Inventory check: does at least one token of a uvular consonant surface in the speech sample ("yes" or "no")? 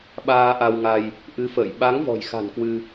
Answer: no